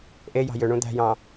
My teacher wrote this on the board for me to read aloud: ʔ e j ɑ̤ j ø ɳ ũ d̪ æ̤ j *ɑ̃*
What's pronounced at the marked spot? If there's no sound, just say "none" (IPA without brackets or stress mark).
ɑ̃